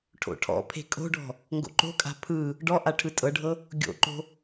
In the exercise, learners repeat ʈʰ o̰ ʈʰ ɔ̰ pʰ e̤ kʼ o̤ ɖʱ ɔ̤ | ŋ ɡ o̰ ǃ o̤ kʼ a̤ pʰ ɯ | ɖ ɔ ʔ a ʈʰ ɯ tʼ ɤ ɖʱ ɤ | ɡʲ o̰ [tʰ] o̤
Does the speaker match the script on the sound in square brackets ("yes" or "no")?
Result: no